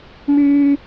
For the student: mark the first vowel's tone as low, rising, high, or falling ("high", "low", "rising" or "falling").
low